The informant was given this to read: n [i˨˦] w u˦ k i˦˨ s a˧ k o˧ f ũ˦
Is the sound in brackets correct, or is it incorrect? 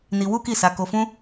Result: incorrect